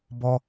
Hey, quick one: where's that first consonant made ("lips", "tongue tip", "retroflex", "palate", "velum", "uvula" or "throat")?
lips